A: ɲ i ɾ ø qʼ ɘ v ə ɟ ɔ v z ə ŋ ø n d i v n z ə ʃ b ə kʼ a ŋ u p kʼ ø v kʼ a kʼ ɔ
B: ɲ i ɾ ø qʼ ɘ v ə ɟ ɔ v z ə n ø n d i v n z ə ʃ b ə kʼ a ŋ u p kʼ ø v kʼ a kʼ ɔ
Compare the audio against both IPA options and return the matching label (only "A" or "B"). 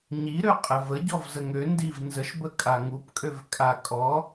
A